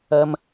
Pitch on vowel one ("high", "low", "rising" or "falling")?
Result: high